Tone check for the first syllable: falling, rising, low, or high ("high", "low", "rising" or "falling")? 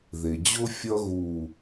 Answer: low